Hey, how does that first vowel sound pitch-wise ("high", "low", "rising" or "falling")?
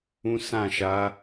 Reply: high